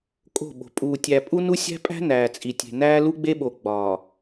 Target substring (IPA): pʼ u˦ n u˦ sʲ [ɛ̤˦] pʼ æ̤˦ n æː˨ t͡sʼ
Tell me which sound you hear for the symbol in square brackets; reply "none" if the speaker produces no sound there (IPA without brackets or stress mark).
æ̤˦